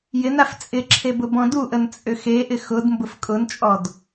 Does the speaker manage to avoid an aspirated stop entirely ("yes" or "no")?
no